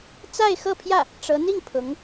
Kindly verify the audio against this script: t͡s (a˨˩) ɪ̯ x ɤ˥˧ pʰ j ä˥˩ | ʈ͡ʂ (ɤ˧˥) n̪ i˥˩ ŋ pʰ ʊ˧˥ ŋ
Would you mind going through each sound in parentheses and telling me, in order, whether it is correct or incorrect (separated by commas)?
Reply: incorrect, correct